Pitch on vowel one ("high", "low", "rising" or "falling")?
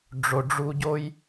low